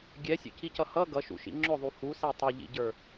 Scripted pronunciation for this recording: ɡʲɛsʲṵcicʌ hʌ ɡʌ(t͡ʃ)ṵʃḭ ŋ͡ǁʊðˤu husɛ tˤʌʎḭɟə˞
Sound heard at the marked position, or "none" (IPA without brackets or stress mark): ʃ